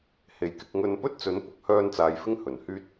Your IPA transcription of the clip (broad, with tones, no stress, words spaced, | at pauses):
he˨˧jkɪ˧k̚ ŋɵ˧npɵ˥t̚t͡sɵ˨˥n pʊ˨k̚hœː˧nt͡saː˨j fɪ˥ŋhɵ˨˩nhyː˥t̚